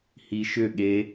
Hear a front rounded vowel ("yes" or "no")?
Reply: yes